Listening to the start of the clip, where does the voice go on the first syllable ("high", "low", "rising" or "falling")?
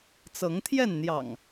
rising